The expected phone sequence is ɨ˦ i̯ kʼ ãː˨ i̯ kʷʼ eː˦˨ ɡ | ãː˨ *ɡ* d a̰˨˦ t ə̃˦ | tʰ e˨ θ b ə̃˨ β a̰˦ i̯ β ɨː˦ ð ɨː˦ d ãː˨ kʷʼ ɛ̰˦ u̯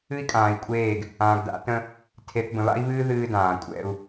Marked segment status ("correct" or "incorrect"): correct